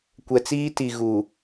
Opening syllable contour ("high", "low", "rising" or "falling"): low